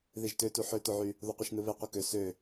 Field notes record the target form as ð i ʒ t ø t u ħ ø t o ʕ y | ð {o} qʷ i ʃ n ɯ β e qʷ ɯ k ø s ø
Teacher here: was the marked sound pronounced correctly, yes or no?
yes